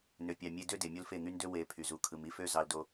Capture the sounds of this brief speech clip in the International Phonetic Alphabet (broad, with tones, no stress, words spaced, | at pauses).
nø˨pʲɑ˨ mʲe˧ dø˦de˨mʲo˦l fe˦˨ŋy˦ndø˦ we˨ pʰy˨zu˨kʰɯ˨m i˦fø˦ zɑ˧ldo˧